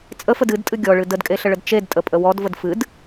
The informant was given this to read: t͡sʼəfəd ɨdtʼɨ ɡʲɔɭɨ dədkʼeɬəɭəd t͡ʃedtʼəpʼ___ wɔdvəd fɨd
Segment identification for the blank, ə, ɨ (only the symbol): ə